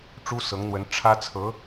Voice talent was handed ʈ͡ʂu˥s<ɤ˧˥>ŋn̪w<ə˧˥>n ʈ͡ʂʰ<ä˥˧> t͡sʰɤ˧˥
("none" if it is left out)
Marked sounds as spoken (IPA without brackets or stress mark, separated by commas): ɤ˧˥, ə˧˥, ä˥